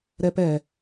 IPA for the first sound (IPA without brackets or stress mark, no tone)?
ɾ